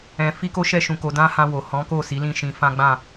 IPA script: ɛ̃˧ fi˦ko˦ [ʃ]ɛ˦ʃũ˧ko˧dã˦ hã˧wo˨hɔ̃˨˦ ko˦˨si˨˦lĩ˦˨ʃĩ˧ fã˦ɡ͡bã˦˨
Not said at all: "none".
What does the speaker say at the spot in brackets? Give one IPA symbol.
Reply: ʃ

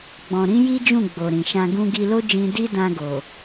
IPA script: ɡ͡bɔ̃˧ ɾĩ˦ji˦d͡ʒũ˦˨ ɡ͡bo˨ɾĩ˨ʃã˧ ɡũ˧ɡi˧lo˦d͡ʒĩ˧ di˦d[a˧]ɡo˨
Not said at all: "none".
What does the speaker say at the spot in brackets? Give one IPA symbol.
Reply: ã˧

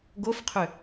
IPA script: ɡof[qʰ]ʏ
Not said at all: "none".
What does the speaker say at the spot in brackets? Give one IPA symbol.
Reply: qʰ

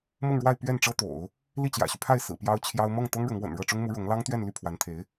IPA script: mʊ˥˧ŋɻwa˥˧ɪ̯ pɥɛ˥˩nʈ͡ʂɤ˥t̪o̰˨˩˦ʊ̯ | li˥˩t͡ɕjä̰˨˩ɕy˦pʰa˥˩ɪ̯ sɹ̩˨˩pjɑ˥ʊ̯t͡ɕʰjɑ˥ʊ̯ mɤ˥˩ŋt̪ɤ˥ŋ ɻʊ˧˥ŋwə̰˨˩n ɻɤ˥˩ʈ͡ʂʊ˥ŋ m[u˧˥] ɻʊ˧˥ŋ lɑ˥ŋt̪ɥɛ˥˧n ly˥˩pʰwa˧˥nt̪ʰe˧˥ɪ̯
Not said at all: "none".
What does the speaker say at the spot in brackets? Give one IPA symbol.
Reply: u˧˥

